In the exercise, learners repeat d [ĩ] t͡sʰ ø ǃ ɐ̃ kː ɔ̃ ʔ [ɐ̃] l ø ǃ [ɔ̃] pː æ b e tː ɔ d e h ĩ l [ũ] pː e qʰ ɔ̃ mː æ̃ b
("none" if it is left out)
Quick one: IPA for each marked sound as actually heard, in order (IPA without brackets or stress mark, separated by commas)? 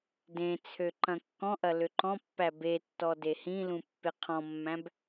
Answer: ẽ, ɐ, ɔ̃, ũ